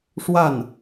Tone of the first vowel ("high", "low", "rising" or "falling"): falling